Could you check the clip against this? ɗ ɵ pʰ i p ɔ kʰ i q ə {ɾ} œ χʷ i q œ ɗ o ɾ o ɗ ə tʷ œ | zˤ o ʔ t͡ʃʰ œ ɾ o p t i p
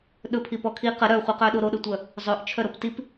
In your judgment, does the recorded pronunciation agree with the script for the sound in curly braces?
yes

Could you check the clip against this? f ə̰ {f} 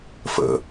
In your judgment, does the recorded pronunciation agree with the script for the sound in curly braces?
no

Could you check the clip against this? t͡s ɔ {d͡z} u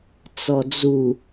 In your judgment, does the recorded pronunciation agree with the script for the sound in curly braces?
yes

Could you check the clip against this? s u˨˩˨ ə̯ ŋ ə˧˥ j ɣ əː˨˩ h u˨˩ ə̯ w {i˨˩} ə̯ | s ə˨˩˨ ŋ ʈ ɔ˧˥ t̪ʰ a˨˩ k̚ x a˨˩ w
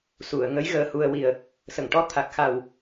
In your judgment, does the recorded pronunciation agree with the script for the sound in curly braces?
yes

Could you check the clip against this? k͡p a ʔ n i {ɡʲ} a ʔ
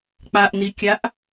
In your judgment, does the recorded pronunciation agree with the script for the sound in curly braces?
no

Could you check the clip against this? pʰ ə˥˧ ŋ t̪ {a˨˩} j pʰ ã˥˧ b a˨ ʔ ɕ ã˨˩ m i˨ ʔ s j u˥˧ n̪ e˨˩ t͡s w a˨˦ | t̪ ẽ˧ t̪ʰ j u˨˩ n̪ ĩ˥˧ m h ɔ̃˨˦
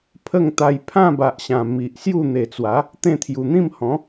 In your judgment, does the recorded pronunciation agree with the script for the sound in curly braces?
no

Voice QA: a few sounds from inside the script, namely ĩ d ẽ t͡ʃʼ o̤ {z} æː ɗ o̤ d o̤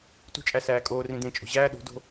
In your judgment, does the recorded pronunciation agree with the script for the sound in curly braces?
no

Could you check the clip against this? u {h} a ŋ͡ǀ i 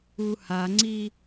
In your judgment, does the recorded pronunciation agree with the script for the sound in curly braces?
yes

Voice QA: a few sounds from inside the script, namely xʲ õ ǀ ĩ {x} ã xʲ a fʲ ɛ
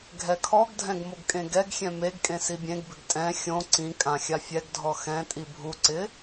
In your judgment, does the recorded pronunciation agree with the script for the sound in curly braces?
no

